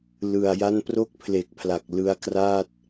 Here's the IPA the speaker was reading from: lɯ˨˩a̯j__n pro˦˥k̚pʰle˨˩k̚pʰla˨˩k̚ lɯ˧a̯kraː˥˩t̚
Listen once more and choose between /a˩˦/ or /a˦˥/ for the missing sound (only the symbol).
a˦˥